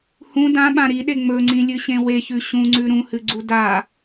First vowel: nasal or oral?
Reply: nasal